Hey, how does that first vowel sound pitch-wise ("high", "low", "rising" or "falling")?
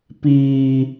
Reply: low